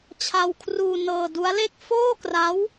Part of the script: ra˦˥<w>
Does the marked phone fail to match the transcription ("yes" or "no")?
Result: no